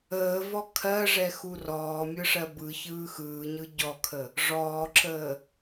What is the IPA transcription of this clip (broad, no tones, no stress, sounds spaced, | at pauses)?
əː v ɔ kʰ ɜ ʐ ɛ x u r ɔː mʲ ɯ ʂ ɜ b ɯ ç ɯː x ɯː ɲ ɯ ɟ ɔ kʰ ə | ʐ ɔː ǁ əː